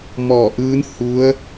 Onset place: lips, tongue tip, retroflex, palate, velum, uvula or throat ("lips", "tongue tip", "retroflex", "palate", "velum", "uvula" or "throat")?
lips